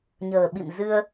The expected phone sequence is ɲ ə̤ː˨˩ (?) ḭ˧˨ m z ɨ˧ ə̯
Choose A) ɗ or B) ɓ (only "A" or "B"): B